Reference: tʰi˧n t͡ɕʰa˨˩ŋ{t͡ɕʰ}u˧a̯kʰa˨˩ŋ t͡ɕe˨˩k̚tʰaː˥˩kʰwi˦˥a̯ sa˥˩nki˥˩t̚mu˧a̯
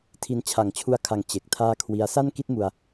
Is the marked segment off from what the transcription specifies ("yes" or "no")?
no